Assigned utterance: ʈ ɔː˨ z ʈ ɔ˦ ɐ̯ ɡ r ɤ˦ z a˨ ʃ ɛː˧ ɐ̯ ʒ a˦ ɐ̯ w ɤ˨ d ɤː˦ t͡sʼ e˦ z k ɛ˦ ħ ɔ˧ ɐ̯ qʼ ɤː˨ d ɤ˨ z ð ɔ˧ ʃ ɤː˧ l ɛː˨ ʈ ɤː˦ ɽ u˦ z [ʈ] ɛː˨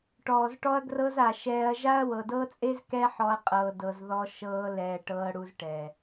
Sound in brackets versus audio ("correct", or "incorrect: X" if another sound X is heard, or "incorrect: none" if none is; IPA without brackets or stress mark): correct